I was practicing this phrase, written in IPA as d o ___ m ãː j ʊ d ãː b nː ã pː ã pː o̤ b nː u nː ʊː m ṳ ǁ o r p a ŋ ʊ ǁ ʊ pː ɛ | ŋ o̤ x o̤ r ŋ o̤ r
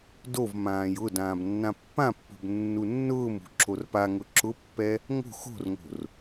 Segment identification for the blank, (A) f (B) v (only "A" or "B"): B